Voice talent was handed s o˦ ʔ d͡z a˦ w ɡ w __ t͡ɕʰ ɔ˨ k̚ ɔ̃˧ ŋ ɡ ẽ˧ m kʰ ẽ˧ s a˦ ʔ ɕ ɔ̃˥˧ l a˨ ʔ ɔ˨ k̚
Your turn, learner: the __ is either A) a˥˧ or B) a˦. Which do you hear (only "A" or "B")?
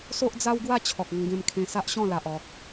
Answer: A